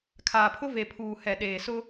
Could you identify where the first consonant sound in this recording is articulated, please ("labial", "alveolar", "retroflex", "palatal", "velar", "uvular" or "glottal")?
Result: velar